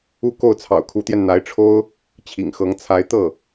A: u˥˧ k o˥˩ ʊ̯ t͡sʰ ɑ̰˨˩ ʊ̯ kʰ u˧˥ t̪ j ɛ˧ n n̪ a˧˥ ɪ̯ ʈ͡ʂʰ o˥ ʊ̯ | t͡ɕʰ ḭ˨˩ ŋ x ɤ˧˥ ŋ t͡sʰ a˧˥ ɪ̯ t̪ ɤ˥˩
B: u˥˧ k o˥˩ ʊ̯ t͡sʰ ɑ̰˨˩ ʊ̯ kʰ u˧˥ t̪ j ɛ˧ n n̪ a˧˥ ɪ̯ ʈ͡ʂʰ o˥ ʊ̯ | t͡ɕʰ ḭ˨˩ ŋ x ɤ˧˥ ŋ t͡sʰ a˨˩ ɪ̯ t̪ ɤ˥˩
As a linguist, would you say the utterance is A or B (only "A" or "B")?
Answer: A